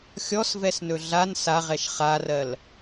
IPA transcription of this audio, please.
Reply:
xʲ ɔ s v ɛ s n ɵ ɮ a n s a ʁ ɛ ʃ χ a r ɜ l

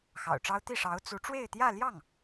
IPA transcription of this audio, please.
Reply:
x ɑ̰˨˩ ʊ̯ ʈ͡ʂ ɑ˥ ʊ̯ t̪ i˥˩ ʂ ɑ˧˥ ʊ̯ t͡s u˧˥ ʈ͡ʂ w e˥˧ ɪ̯ t̪ j ä˥˧ l j ɑ˥˩ ŋ

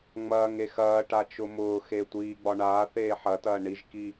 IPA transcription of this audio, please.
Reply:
ŋ͡m ɐː ŋ e x ɐː ʈ a t͡ʃ ʊ m ʊː x e tʷ iː ɡ͡b ɒ ɳ aː θ eː ħ ɐ t ɐː ɳ i ʒ k i

